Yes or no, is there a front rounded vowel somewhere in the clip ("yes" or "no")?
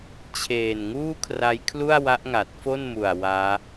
no